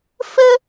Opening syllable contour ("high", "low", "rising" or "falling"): high